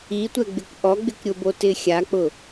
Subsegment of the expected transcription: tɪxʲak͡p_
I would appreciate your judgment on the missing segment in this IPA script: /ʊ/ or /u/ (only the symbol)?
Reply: ʊ